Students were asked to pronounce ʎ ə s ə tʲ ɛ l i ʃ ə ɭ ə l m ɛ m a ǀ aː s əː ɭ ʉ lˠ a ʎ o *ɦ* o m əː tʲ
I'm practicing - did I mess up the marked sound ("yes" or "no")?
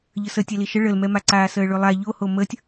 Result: yes